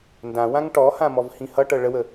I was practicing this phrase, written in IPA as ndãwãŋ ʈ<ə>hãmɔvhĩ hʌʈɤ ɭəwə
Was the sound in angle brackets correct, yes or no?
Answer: no